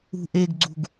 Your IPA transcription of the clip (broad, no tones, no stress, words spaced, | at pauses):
ṳʔeɡɡ͡ǀṳɡ